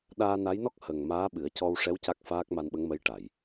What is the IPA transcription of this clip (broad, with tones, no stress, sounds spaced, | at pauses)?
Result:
ɗ aː˧ n a˧˥ j n ɔ˦˥ k̚ h ə˨˩ ŋ m aː˧˥ ɓ ɨ˨˩˦ ə̯ c ɔ˧ w ʂ ɛ˧˥ w c a˦˥ k̚ f aː˦˥ k̚ m a˧ n ɓ ə˧˥ ŋ m ə˧˥ j ʈ a˨˩˨ j